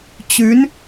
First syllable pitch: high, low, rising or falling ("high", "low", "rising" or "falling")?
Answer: rising